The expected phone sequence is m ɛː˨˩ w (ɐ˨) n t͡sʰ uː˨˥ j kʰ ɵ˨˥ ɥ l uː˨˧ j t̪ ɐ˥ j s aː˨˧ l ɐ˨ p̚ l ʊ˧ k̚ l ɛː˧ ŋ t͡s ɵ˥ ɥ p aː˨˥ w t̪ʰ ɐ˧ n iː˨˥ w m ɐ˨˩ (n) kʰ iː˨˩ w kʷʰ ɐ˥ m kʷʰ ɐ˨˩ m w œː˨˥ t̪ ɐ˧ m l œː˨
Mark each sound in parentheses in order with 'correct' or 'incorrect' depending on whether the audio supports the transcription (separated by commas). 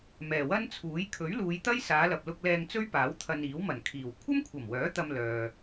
incorrect, correct